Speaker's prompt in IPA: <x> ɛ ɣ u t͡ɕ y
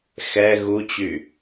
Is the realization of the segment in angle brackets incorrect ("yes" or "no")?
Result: no